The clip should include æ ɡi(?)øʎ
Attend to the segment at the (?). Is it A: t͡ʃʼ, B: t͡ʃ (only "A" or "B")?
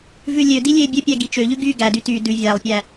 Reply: B